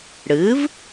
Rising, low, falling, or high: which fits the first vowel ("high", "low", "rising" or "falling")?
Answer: rising